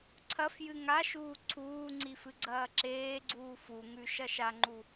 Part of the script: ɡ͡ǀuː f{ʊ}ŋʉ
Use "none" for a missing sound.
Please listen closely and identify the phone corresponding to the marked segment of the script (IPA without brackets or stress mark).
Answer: u